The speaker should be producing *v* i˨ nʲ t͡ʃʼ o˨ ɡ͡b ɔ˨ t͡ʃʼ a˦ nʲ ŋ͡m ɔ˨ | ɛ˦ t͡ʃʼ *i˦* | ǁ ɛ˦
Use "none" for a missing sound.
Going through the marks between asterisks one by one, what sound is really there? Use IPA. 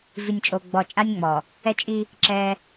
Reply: v, i˦

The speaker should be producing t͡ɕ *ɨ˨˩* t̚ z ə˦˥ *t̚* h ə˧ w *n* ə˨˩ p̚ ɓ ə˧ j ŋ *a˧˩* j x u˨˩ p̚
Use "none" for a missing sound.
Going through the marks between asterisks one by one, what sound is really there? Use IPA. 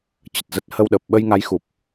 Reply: ə˨˩, t̚, ɗ, a˨˦

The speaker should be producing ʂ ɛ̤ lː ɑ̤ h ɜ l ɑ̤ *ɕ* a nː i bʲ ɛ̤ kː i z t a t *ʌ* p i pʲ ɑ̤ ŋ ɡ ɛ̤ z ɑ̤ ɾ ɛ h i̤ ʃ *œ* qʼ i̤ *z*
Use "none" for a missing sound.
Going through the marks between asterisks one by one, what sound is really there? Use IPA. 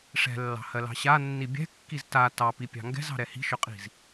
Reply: ɕ, ɑ, œ, z

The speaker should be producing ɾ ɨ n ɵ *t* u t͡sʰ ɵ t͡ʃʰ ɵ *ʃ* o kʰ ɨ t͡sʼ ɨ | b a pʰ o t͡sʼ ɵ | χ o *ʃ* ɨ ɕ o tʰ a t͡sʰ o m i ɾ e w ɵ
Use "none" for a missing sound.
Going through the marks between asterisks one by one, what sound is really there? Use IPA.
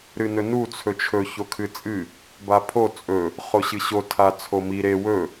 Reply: n, ç, ɕ

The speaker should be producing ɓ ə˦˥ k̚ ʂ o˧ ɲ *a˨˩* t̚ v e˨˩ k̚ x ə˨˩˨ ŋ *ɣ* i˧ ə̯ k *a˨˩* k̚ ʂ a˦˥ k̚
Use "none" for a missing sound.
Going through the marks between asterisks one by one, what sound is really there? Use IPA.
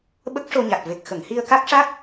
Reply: a˨˩, h, a˦˥

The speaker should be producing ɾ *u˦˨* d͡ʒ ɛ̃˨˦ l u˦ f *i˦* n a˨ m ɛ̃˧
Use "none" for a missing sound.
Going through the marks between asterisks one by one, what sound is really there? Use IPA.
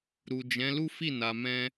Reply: u˨, i˦˨

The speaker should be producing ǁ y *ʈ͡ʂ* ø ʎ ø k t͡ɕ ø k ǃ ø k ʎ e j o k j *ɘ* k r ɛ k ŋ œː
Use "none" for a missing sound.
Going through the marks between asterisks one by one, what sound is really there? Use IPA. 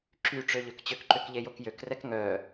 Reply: ʈ͡ʂ, ø

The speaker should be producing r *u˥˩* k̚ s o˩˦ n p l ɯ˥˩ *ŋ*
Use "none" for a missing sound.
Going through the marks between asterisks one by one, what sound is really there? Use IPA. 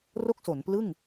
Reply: o˥˩, ŋ

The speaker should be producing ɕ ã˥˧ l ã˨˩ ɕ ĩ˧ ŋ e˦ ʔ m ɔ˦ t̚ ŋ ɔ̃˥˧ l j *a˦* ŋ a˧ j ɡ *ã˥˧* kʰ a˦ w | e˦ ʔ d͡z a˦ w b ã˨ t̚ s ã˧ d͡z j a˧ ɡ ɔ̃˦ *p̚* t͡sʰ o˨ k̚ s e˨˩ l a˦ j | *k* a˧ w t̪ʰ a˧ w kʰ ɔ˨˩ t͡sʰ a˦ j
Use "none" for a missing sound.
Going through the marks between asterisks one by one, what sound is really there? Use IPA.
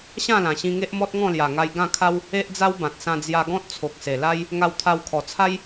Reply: a˨˩, ã˥˧, t̚, ŋ

